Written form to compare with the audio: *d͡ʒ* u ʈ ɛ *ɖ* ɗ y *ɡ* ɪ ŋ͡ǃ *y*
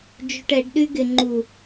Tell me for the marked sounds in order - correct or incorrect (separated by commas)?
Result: correct, correct, correct, incorrect